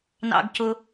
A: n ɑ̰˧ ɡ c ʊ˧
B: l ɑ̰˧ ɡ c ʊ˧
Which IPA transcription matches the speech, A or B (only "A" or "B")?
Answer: A